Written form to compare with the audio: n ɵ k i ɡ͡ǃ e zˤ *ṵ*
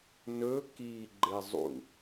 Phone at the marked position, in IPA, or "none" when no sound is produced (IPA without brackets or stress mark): ṵ